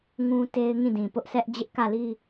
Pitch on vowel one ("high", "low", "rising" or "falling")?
high